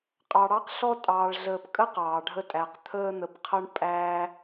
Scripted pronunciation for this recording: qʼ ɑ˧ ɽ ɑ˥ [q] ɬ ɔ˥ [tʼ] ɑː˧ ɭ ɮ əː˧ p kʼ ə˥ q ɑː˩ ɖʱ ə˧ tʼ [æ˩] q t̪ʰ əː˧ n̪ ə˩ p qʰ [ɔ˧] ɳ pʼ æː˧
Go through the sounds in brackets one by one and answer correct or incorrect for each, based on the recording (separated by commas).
correct, correct, correct, incorrect